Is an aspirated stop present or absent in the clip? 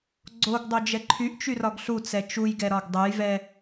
present